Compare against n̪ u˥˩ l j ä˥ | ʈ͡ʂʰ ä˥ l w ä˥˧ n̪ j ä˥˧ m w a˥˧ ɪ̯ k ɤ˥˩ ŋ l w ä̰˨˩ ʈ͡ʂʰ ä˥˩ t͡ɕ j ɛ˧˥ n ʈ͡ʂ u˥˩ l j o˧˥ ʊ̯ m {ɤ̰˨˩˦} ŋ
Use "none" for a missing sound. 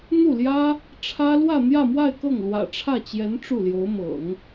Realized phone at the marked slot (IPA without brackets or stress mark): ɤ̰˨˩˦